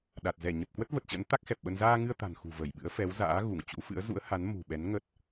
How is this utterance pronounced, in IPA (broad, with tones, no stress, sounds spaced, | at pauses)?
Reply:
ɗ a˨˩ t̚ z ɛ˧˩ ɲ ə˨˩ p̚ k w ə˦˥ t̚ v ə˨˩ t̚ t͡ɕ ə̰˧˥ n t̪ a˦˥ k̚ x ɛ˨˩ p̚ ɓ ə˧ n z aː˧ ŋ ɨ˧ ə̯ t̪ a̤˨˩ n x ṳ˨˩ v ə˧˩ j ɓ ɨ̰˧˥ ə̯ f ɛ˨˦ w z a̰ː˧˥ ɣ u˧˩ ŋ t͡ɕ ṵ˧˥ f ɨ̰˧˥ ə̯ z ṵ˧˥ ə̯ h a˨˦ n m ṳ˨˩ ɓ ɛ˨˦ n ŋ ə˦˥ t̚